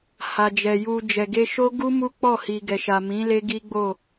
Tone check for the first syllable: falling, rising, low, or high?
low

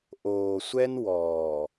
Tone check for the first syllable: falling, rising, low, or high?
low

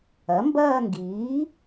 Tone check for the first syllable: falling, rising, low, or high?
rising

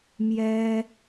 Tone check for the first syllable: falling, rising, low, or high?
high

